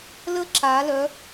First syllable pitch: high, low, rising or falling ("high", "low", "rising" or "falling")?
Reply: high